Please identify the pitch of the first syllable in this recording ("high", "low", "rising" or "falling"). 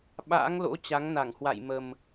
rising